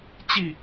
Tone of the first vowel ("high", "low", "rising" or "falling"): falling